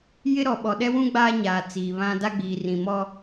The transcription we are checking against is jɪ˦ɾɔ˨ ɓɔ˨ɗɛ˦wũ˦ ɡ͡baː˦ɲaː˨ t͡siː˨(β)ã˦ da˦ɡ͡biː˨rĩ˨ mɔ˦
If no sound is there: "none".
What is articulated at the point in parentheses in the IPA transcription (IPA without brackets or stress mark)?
β